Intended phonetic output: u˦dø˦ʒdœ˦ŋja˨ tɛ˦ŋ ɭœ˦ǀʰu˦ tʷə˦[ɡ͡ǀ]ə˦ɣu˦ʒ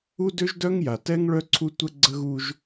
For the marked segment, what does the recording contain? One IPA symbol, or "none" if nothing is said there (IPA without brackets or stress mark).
ɡ͡ǀ